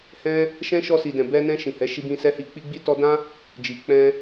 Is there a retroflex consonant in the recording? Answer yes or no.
no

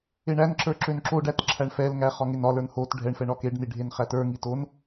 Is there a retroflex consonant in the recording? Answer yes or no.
yes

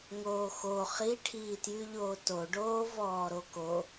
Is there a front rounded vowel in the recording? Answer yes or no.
yes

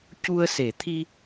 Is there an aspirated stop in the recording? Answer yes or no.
yes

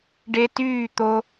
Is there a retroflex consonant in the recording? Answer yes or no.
yes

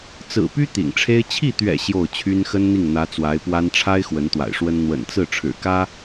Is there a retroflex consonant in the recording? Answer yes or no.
yes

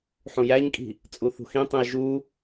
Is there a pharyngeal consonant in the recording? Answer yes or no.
yes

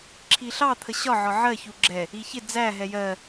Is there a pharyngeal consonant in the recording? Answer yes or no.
yes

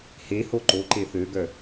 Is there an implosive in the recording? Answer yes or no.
no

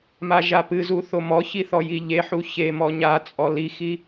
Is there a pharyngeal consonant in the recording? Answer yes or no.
yes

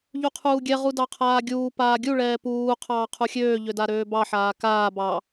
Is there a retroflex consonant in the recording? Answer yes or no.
yes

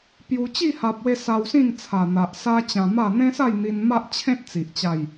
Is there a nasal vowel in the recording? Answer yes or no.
yes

